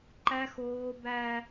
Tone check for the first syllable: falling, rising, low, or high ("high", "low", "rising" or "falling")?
high